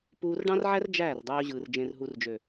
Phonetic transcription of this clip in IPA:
puː˧rɖɑ̃˦rʕæ˦r d͡ʒæː˦˨rdˤøː˧ʑɯː˨r d͡ʒẽ˨rɦu˨rd͡ʒø˨

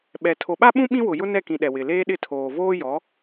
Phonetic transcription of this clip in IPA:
ɓɛ˨ tʰo˨ɓa˦ɓũ˦ ɓĩ˦wʊ˨ jʊ˦nɛ˦˨kĩ˨ ɗɛ˨wɪ˨ leː˦ɗɪ˦˨ tʰoː˨ voː˦jɔ˨˦

